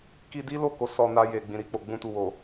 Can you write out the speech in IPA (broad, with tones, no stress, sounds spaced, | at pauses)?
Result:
k i˧ d i˦ l o˦˨ k o˨˦ s ɔ˧ n a˧ j e˨ ɡ͡b ĩ˨ ɾ i˧ k͡p o˨ ɡ͡b ũ˧ t u˨ w o˨